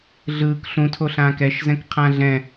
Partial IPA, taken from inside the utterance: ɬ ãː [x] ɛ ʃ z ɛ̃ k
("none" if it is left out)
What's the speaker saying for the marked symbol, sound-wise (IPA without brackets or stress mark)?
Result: k